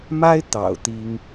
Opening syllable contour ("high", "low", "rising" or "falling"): high